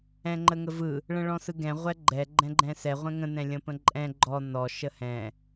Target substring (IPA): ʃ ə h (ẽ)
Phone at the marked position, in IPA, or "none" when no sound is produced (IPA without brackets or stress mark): ɛ̃